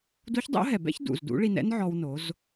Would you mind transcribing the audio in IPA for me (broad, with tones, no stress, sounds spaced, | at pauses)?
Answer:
d u˧˥ ç dˤ o̰˧˥ ɦ ɛ˩ b ɛ̰˥ ç d ṵ˩ z d ṵ˧˥ ɭ i˧ n ɛ̰˥ n ʕ ɔ˧ w n o˩˧ z